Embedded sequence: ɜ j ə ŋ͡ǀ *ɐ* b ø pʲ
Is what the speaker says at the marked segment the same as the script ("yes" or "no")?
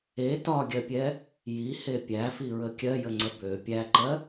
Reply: no